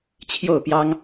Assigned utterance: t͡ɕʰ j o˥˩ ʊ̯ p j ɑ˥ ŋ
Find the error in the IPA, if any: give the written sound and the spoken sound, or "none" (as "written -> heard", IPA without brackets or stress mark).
none